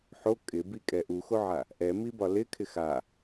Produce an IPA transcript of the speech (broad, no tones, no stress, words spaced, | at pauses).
ħo kʼɪbikʼɛ ʔuxoʕa | ʔɛmibɒ lɪkʰɪx a